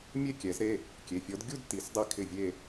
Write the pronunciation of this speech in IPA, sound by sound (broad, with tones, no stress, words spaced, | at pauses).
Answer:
mʲe˥˩kʲɛ˨˩˦z ɾe˩˧˩ | kʲe˩˧˩fʲɔ˨˥d ɡʲu˥˧d ti˨˩˦s dˤi˥˩kʰɪ˥˩vʲe˥˧